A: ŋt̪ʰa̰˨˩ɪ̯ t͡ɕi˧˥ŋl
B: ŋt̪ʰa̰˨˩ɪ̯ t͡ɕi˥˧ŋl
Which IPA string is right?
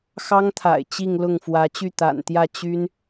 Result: B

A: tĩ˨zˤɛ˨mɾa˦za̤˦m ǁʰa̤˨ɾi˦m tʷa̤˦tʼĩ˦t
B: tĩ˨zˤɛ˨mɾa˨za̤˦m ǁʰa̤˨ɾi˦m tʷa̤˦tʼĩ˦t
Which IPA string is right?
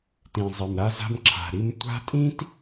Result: A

